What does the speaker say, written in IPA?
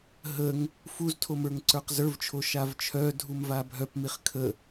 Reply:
ɦəŋ | fuztʰom ə˞ŋǀə˞qzə˞vt͡ʃʰo ʃavt͡ʃʰœdʱum vabʱœpmiχ kʰə

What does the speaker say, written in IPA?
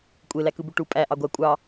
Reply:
kʷʼelækɯbu ʈu pʼæ ʔɑɡʷæ kʷʼɑ

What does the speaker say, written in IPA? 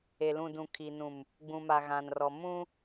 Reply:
e˨lũ˨dũ˨ kʰi˨nũ˨m | ɡ͡bũ˨ma˨ɣã˨nrɔ˨ mũ˦

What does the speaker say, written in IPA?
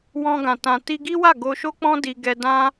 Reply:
wɔ̃˧ɡã˨ tã˨ti˧ɡi˦wa˦˨ ɡo˧ʃo˦k͡pɔ̃˦ di˧ɡɛ˧dã˦

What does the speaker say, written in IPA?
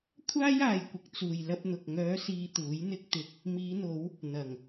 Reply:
kʷʰaː˥jaː˨jkʷɪ˨k̚ t͡suː˨jlɐ˧p̚n̪ʊ˨k̚ ŋœː˨˧siː˨ t̪uː˨˥jn̪ɪ˥k̚t̪ɪ˧k̚ | miː˨˧n̪o˨˧w | n̪ɐ˨˩ŋ

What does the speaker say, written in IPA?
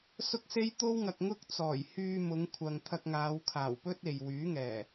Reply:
sʊ˥k̚se˥j t̪o˥wŋɐ˨k̚ŋʊ˥k̚ t͡sɔː˨˩j hyː˧mʊ˨˧ŋkʷʰɐ˨ŋ t̪ʰɐ˧k̚ŋaː˨˧wkʰaː˨˩wpɵ˥t̚ e˨j wyː˨˥ŋɛː˨˩

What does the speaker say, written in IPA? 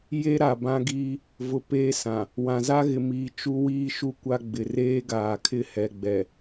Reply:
je˦ɾa˨bã˦ɡiː˦ | vʊ˨ peː˦sã˨ | wã˨za˦ɣɪ˨miː˨ t͡ʃu˦wiː˦ʃu˦ kʷa˦ɡ͡bɪ˨ reː˦ɡaː˨kʰɪ˦ hɛ˨ɡ͡bɛ˨

